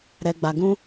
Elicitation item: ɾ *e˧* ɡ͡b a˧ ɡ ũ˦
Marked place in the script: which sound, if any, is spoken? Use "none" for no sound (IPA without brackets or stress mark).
ɛ˧